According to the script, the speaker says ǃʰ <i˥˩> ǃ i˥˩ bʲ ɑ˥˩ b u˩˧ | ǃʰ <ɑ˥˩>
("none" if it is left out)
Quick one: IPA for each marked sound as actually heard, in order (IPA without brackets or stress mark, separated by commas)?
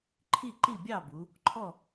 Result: i˥˩, ɔ˥˩